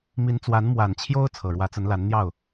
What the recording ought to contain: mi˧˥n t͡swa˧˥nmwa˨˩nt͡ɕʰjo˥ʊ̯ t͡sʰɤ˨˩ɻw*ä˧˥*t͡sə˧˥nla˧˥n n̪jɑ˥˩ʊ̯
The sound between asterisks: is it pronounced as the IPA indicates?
yes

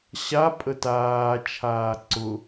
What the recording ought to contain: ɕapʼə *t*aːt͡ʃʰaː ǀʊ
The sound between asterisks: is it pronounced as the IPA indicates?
yes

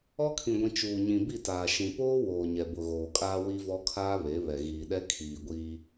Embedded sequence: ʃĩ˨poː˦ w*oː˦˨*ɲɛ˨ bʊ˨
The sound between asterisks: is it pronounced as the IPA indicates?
no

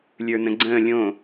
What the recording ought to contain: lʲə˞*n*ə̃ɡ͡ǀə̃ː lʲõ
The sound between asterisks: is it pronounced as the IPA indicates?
yes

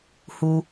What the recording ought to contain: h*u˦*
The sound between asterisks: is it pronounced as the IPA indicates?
yes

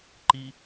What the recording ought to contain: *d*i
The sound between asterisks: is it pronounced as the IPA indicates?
no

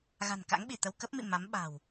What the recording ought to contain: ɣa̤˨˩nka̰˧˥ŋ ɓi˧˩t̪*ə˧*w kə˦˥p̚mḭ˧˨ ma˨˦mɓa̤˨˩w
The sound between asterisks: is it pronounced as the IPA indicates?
yes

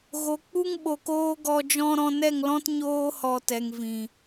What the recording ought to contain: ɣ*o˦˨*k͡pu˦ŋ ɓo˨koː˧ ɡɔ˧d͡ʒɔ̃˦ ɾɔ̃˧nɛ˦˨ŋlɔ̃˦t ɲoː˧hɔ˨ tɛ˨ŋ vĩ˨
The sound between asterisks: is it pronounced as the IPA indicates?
no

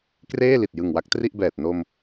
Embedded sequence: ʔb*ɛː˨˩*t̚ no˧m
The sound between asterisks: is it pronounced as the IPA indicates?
yes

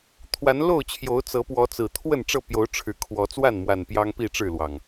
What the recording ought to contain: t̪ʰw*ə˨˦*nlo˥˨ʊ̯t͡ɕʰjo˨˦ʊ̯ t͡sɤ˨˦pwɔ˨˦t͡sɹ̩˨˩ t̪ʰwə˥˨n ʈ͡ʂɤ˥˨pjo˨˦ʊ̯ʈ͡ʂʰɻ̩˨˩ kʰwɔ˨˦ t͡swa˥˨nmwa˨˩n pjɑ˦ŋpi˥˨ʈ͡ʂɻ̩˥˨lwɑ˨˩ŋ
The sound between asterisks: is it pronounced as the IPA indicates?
no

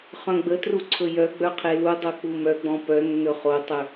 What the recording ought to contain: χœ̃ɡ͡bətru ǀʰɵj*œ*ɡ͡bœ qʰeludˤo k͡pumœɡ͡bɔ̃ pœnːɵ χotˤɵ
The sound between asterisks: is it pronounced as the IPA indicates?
yes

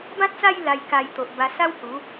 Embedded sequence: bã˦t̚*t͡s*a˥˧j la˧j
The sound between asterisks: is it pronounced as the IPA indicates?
yes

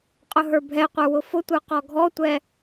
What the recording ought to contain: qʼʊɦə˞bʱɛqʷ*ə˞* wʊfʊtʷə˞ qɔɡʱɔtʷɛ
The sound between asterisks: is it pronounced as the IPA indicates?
yes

